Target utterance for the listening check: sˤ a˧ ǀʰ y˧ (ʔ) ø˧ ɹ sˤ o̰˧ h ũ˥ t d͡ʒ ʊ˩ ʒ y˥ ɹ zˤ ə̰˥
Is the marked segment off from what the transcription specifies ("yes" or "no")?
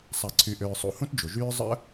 no